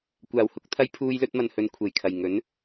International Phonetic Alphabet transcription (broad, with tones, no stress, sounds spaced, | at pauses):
kʷ aː˨˩ w h ʊ˧ k̚ t̪ʰ ɐ˧ j pʰ uː˧ j l ɵ˧ t̚ m ɐ˨ n h ɵ˨ n kʷʰ e˨˩ j kʰ ɐ˨˩ j ŋ ɵ˨˥ n